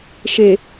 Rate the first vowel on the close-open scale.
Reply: mid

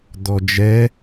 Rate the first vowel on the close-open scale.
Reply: mid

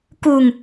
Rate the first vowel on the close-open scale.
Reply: close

